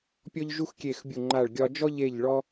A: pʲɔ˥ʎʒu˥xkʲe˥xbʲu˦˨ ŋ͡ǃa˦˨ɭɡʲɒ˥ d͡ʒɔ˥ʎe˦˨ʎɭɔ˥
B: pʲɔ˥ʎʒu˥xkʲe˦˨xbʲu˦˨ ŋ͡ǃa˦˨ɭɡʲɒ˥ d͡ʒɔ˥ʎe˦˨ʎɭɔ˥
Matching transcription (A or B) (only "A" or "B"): B